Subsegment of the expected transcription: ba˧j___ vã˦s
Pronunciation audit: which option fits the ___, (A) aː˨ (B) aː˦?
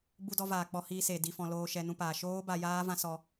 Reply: B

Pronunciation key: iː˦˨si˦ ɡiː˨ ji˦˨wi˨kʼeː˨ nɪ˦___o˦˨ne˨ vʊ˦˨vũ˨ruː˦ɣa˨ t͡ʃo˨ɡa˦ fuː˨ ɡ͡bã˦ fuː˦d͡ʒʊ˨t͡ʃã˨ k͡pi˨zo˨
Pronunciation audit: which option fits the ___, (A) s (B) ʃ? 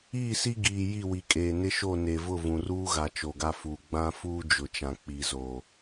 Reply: B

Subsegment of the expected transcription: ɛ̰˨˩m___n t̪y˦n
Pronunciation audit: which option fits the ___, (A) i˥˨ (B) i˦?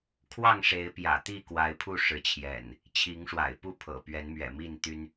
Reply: A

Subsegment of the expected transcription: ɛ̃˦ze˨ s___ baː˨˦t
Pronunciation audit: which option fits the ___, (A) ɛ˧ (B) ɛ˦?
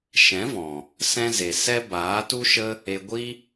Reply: B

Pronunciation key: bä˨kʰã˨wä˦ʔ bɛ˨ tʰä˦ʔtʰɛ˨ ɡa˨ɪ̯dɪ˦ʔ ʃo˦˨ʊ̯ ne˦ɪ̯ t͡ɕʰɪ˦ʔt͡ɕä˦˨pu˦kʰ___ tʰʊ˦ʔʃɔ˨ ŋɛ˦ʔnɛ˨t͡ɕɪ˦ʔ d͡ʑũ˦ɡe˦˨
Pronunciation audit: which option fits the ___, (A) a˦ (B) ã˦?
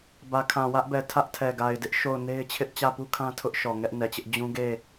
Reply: B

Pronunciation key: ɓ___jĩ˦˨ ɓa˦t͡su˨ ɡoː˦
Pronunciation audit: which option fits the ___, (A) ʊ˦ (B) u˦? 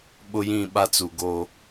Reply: A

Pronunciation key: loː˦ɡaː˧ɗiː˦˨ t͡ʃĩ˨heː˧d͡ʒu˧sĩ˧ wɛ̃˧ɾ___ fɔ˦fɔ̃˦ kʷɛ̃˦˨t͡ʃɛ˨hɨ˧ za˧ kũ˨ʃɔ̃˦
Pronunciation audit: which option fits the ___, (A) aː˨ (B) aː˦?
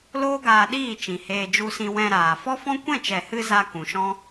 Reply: A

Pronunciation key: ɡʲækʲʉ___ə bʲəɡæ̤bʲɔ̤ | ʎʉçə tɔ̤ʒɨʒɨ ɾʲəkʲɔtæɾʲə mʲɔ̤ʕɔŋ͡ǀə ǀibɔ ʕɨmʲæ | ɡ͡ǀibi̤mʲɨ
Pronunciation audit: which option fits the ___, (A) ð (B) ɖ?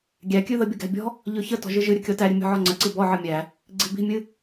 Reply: A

